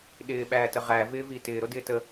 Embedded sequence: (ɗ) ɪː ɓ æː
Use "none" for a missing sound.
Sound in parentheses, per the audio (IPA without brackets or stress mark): ɗ